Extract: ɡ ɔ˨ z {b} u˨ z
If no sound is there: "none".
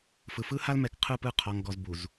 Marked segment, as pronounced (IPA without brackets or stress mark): b